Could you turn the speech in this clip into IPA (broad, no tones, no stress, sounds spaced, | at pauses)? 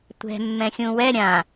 tʷ ɛ̤ mː ɛ̃ xʲ ũ w ɛ ɾʲ ã